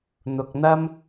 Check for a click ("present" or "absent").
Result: absent